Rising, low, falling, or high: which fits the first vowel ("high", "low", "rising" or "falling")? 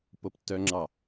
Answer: low